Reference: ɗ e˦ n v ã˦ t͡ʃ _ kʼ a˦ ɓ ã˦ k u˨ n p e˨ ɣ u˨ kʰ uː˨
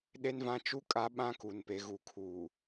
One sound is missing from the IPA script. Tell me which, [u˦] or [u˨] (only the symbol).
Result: u˦